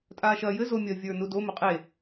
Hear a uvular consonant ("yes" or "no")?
yes